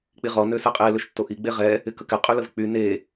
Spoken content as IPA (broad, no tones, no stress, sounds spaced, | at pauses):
k͡p i ʁ ɔ n ø s ɛ qʼ e l ø ʃ tː o ʔ i ɡ͡b e ʁ ɛ | ɪ k ə k ɪ qʼ y l ə v k͡p y n e